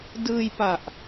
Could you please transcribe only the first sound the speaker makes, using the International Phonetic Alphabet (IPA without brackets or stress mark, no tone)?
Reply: d